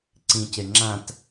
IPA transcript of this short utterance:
ǀ ĩ c e ŋ͡ǁ ã t

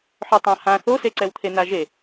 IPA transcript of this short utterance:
ħ œ tˤ ã h ã θ o s e ǀ ɛ w t̪ʰ e n a ʒ e

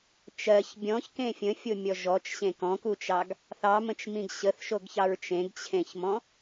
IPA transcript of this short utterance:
t͡ʃ ɜ ç bʲ ɔ̃ ç k ẽ fʲ ə̃ fʲ o mʲ ɔ ʒ ɔ t͡ʃ ɕ ẽ k ɔ̃ k u t͡ʃ ɑ ɡ | θ ɑ m ə̃ t͡ʃ m ĩ ɡ ɕ ə θ ʃ o ɡ ç ɑ ɹ t͡ʃ ẽ ɡ t͡ɕʰ ẽ ç m ɔ̃

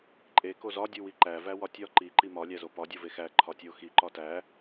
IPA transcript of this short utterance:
ǃʼ e k o z ɒ dʲ u w i ǃ æ v æ w ɒ tʲ ɒ ǃ i ǃ i m ɒ lʲ æ z o p ɒ dʲ o v e x æ ǃʰ ɒ tʲ o x i ǃ ɒ t æ

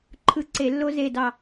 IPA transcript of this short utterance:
ǃʰ ɯ˧˩ ǀ e˧˩˧ lː o˦ z e˧˩ d ɑ˧˩

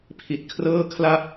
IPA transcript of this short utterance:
pʰ i˨˩ t̚ kʰ r ɤː˥˩ kʰ l a˥˩ p̚

